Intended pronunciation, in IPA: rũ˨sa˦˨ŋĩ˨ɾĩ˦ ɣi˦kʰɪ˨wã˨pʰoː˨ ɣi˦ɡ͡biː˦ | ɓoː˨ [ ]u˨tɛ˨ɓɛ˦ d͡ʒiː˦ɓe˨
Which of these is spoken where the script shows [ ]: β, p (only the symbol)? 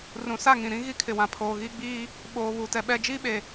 β